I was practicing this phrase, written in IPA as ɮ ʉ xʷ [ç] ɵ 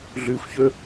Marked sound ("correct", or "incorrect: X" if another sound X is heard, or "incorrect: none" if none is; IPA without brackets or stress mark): correct